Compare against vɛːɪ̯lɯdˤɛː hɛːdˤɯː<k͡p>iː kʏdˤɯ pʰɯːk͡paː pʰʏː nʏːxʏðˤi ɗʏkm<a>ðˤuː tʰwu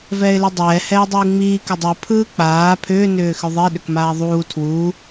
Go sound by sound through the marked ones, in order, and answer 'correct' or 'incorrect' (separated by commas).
incorrect, incorrect